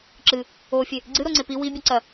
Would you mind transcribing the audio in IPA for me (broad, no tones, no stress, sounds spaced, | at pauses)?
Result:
ǁ ɨ | o fʲ e | ɡ͡ǀ ɨ ɾ o ŋ͡ǀ e p i w i bʲ ɨ ǀ ɐ